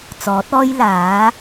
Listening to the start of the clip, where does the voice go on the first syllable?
rising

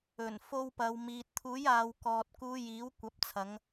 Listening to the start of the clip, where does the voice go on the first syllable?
low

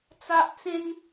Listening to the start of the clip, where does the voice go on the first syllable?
high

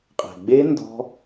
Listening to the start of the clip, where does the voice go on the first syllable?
low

